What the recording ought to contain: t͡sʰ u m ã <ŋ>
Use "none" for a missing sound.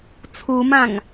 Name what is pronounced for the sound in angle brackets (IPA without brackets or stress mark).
ŋ